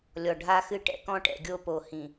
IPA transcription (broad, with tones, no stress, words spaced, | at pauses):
lʲɔ˨ɖʱa˦xɨ˦ʈɛ̰˦ kɔ̃˦ʈɛ̰˨ɡʲo˦ po˨hĩ˨